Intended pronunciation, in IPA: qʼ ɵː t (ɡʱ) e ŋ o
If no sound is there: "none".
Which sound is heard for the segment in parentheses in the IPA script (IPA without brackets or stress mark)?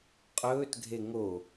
ɡʱ